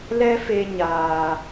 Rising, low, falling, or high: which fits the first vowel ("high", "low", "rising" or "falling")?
high